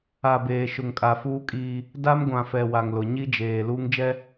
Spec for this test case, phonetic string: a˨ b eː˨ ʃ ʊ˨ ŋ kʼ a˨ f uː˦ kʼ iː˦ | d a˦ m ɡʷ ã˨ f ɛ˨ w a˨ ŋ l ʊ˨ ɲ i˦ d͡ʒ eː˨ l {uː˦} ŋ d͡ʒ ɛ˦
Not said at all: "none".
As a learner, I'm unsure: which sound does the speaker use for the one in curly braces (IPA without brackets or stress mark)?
uː˦